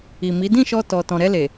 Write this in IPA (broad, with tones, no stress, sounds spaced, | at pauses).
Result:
i˨ m i˨˦ d ĩ˦˨ ʃ ɔ˧ t ɔ˨ t ɔ̃˨ ɾ ɛ˧ l e˨